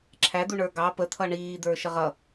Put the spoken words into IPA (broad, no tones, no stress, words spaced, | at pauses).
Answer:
ǁʰæd̪u ɳə˞ɡɑ pə t̪ʰʌɳiːd̪ə˞ ʃəʁʌ